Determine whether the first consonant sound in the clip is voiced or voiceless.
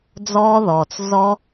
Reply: voiced